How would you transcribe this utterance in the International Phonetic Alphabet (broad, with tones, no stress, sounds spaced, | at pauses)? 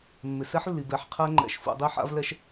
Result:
mː ɪ˩ s ɛ˦˥ ħ lː i˩ b ɛ˩˧˩ ħ qʰ ɛ˦˥ ŋ͡ǃ ɛ̰˩˧˩ ʃ f ṵ˩˧ dˤ i˦˥ ħ a̰˦˥ v l ɛ˦˥ ʃ